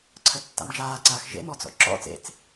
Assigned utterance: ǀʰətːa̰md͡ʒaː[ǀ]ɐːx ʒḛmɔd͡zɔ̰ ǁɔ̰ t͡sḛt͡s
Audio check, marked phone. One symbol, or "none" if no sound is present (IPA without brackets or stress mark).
ǀ